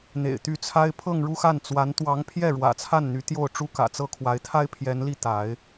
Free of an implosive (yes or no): yes